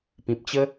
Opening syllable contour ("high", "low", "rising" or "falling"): low